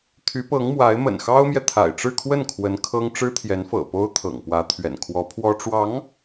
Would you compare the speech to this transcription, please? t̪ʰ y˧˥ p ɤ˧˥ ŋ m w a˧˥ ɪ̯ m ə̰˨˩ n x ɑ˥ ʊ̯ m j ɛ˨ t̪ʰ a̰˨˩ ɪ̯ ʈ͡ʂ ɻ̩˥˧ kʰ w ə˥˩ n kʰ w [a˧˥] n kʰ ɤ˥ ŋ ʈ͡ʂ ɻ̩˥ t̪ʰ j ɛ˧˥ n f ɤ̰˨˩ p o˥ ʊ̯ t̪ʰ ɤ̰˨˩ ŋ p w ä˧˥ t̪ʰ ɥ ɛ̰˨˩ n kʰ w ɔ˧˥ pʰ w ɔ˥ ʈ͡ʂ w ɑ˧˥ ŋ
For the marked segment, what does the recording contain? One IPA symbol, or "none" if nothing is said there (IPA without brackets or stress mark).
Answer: ə˧˥